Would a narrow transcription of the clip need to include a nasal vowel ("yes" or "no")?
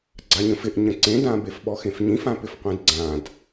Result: yes